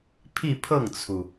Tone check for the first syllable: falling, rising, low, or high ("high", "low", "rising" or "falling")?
falling